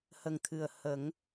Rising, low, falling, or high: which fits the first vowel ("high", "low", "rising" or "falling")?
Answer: low